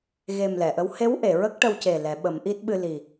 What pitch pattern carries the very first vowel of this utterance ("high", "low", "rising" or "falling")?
low